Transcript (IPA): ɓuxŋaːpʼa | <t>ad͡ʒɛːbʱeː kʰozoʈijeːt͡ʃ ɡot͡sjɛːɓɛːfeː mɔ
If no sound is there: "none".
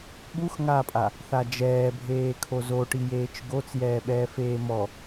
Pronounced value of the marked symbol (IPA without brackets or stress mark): θ